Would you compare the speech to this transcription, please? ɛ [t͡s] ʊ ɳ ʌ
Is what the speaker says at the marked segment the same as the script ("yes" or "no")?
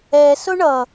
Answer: no